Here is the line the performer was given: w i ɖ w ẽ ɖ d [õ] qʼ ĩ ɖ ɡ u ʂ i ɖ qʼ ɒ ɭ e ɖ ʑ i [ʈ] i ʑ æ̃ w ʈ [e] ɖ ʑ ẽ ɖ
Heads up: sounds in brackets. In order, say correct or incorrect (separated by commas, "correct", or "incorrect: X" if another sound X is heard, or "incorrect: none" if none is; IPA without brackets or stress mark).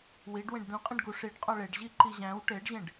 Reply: incorrect: ũ, incorrect: ǃ, correct